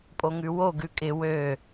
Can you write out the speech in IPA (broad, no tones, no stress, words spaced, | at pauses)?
pʼoŋʉwo ɡʉkʼɪ wø